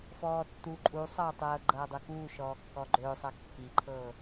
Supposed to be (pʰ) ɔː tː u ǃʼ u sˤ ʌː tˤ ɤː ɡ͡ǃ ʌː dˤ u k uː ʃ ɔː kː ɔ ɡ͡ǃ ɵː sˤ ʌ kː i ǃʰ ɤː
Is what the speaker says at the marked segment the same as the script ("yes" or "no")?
no